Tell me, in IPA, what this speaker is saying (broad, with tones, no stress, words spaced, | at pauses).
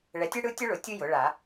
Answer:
ɭɛ˩˥tʲɯ˥ɽɯ˥ tʲʊ˥ɭʊ˩˥ tʲɯ˥ jʊ˩˥ɭa˨˩˦